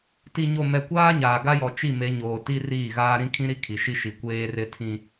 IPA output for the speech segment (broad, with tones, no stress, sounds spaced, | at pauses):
t i˨ ɲ o˨ m ɛ˨ kʷ aː˦ ɲ aː˨ ɡ a˦ j ɔ˨ t͡ʃ i˦˨ m e˨˦ ɲ oː˨ t i˦ r iː˦˨ ɣ aː˦ ɾ ĩ˦ kʰ ĩ˦ ɾ i˦ kʰ i˨ ʃ i˦ ʃ i˨ kʷ eː˦ r ɪ˦ tʰ ĩ˦